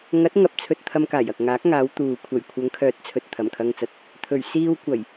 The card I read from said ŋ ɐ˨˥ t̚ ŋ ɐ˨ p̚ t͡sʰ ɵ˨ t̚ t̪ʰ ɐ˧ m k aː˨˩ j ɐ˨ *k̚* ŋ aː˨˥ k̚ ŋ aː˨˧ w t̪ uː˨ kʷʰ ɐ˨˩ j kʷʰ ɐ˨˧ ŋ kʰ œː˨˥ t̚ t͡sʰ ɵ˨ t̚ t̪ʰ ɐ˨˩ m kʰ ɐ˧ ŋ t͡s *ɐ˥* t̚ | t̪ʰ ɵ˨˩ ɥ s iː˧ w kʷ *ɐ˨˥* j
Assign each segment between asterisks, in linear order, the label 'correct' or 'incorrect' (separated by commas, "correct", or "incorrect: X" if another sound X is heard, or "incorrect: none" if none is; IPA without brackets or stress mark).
correct, incorrect: ɐ˨, incorrect: ɐ˨˩